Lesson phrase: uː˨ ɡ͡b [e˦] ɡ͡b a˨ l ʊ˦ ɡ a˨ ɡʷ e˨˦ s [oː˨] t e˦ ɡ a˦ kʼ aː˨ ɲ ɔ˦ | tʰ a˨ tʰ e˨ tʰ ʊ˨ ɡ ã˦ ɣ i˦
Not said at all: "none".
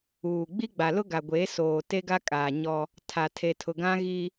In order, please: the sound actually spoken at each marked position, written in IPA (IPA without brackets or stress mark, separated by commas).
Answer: i˦, oː˨